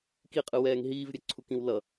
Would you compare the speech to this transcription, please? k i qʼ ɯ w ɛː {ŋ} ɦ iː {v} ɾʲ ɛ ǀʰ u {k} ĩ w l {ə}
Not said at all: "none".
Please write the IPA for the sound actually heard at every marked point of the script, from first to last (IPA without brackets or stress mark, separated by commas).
ŋ, v, k, ʌ